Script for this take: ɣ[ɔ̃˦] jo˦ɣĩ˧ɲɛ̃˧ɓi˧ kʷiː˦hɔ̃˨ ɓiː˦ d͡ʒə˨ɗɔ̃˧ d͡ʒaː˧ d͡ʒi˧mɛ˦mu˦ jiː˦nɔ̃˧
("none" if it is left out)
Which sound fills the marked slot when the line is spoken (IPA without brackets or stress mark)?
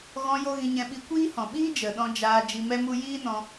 ɔ̃˧